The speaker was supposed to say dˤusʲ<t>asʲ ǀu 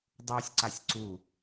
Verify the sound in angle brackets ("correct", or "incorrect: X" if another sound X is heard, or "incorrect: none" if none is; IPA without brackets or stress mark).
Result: incorrect: ǀ